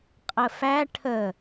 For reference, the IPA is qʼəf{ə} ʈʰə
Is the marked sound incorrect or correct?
incorrect